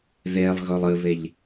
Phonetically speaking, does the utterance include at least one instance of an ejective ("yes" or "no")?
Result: no